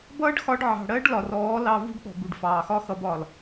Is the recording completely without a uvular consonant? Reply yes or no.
yes